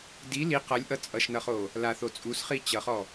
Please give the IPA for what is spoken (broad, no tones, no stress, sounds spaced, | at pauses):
d i l i q ʌ lʲ ʔ ʌ t͡sʼ ʌ ʃ n ʌ χ o | l a θ o t͡sʼ u s χ i t͡ɕ ʌ χ ɔ